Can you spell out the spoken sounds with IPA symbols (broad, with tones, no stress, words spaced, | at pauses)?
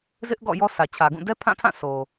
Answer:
zɪ˦ʔɡɔ̰˦˨ jɔ˦sʰä˨t͡ɕʰä˨ɡũ˦˨ dɛ˦pʰã˦˨ tʰã˦˨so˨